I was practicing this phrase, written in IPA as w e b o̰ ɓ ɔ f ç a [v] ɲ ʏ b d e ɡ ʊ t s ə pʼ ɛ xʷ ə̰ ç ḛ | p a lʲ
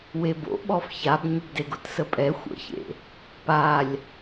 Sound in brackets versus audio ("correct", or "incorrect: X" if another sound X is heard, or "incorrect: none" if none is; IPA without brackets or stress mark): incorrect: b